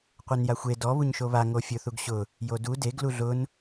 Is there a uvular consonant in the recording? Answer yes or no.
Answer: yes